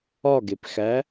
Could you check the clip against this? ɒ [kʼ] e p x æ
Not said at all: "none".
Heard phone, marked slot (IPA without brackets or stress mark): ɡ